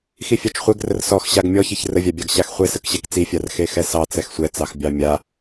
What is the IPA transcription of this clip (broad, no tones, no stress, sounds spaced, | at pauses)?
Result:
x i fʲ ɑ t͡ʃ χʷ e ɡ r ə r s ɔ x ɕ a ɡ mʲ ɔ ç i ç r ə vʲ a bʲ ɑ ɡ ɕ a x χʷ e s ə k ɕ ɛ k t͡s i fʲ a r x e x ɛ s ɑ t͡s ɛ x sʷ ɛ t͡s ɑ x bʲ ɑ mʲ a